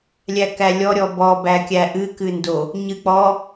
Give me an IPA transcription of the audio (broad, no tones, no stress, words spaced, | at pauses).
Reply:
lʲækælʲɔ ɾʲɔbɔ bækʲæʔɨ kɨndo | ɲɨk͡pɔ